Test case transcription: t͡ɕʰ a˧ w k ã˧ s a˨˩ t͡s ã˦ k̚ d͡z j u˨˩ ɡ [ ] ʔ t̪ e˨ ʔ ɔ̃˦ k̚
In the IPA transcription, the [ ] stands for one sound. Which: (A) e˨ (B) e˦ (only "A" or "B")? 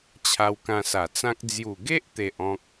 B